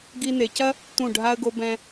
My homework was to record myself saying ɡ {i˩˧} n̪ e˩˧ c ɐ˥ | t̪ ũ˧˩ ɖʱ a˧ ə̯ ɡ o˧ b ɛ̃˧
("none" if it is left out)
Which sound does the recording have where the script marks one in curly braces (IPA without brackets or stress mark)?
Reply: i˧